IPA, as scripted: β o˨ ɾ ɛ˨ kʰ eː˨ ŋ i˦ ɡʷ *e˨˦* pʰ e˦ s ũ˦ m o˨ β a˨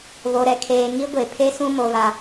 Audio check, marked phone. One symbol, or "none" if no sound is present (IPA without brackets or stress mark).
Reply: e˨